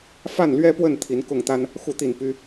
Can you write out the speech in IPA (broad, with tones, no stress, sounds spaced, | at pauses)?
f a˥˨ n l ɥ ɛ˦ p w ə˥˨ n t̪ʰ i˨˦ n k ʊ˥˨ ŋ t̪ a˦ n | x u˥˨ t̪ i˥˨ n p y˦